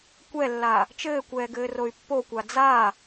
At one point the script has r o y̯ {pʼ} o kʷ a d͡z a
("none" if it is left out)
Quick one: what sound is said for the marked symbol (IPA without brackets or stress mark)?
pː